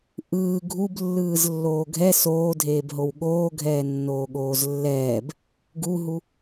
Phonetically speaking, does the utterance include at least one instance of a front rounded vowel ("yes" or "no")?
no